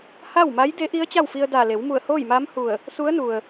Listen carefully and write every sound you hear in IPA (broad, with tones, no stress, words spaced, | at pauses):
ha˥˨wma˧˥j de˧˥ʔi˧˥ə̯ t͡ɕa˥˨wfi˧ə̯daː˧˩ le˩˧w mu˧˩ə̯hoː˥˨jmaː˧˥mhu˧˩ə̯ | su˧˥ə̯nu˩ə̯